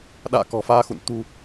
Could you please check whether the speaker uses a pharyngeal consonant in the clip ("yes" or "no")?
no